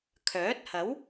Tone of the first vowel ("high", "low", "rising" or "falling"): rising